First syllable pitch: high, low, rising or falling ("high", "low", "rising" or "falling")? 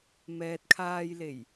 low